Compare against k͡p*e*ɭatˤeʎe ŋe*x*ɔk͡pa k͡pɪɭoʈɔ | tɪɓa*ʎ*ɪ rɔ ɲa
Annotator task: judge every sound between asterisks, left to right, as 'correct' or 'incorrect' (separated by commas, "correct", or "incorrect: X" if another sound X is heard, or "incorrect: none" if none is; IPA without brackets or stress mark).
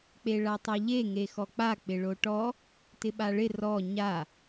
correct, correct, incorrect: ɭ